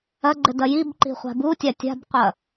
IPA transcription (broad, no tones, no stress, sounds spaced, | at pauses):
ɐ ɡ͡ǃ ɘ d ɐ j i b ǃ i̤ χʷ a̤ b u tʲ a tʲ a̤ b qʷ ɐ